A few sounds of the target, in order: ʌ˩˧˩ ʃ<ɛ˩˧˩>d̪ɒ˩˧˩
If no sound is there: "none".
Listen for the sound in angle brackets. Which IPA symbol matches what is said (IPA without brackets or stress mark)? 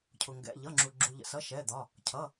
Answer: ɛ˩˧˩